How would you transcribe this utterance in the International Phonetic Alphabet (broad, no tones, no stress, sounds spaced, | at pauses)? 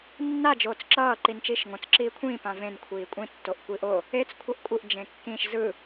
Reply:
nː a d͡ʒ oː t͡s ǁ ʌː ǃ i n t͡ʃ iː ʃ ŋ õ t͡s ǁ iː kʷʰ ĩː p ã v ẽ n kʷʰ iː kʷʼ ĩ tː o ʔ kʷ i ʔ o | e t͡s kʷʰ ʌ ʔ kʷʼ ɯ ʔ d͡ʒ ẽ kː ĩ ʃ z ɯ